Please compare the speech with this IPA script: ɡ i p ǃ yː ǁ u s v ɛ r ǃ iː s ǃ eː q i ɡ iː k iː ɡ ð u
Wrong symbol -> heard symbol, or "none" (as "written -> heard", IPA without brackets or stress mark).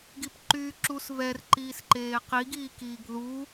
none